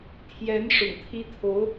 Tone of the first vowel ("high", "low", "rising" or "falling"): rising